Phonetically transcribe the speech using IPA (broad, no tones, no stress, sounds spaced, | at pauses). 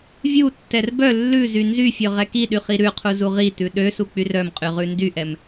vʲ u tː ɛ r b œ lː ʉ z y n z y fʲ ø ʁ ɛ k i ɗ y χ i ɾ ʉ qʰ u z u ʁ i t ʉ ɗ ø s u k͡p y r œ m qʼ y ʁ ʉ n d y ʔ ɛ m